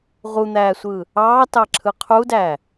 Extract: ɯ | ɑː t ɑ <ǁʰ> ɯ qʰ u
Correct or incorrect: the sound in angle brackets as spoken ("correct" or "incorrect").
correct